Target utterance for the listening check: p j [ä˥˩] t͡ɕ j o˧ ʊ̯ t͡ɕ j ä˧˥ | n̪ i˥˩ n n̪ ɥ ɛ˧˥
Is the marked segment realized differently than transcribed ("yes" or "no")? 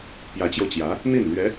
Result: yes